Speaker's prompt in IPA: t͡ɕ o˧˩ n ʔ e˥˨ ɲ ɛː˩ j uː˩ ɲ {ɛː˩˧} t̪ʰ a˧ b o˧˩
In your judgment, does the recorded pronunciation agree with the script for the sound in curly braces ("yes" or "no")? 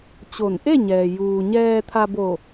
no